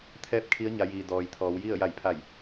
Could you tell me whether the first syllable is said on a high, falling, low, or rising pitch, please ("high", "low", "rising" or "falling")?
falling